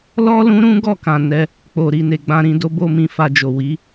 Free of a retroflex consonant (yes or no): yes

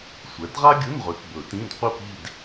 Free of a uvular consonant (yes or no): no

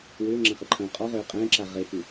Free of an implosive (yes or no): yes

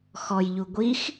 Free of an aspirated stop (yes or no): yes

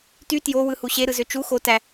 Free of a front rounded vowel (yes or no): no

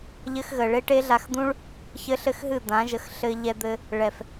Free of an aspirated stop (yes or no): yes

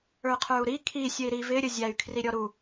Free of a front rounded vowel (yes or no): no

